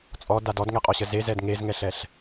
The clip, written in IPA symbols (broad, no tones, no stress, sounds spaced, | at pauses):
t͡sʼ ɔ d a d ɔ d ŋ ɛ qʼ ɔ ɕ ə z e z ɛ d ŋ e z ŋ ɛ ɬ ɛ ɬ